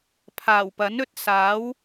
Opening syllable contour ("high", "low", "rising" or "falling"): low